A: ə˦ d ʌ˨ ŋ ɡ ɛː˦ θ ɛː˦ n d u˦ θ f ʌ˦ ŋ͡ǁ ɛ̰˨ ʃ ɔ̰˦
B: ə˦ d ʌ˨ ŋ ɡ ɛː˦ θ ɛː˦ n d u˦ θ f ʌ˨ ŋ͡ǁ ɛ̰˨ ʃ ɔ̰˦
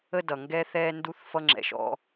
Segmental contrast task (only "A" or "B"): A